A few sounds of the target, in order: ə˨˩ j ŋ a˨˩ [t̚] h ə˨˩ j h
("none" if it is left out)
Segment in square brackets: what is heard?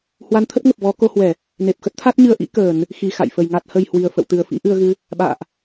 t̚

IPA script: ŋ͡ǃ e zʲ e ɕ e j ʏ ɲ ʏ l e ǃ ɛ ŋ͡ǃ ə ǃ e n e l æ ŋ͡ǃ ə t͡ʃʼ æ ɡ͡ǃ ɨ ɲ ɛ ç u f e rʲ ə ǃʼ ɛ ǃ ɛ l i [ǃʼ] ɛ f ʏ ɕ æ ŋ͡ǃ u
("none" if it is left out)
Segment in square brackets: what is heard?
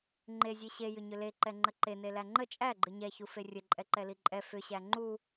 ǃʼ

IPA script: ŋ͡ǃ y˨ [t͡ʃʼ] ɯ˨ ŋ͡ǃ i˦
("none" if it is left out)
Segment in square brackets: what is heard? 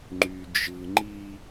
d͡ʒ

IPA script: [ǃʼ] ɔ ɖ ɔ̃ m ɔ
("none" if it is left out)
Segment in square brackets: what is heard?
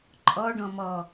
ǃʼ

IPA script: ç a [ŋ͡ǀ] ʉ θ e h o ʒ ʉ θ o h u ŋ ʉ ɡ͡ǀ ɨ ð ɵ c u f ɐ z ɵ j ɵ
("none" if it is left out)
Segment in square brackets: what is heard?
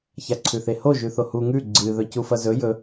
ǀʰ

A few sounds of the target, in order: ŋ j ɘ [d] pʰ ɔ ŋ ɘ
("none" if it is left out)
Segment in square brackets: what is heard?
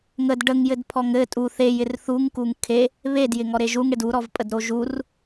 d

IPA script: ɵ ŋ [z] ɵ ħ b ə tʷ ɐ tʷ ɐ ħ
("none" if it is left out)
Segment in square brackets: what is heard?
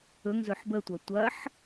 z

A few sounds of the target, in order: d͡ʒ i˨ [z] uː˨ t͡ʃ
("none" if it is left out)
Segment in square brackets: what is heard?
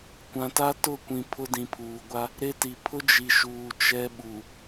ʃ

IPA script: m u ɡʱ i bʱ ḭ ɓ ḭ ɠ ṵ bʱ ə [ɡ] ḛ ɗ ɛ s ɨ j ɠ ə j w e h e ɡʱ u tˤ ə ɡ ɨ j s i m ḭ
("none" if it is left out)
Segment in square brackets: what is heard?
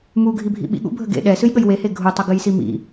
ɡ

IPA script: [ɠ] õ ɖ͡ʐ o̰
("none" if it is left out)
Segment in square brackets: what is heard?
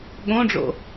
ɠ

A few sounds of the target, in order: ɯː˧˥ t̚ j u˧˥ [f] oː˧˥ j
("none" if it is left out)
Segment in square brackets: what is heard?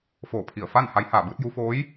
f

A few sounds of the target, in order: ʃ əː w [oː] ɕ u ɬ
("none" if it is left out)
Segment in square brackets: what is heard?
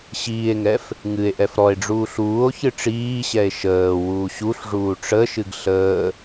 uː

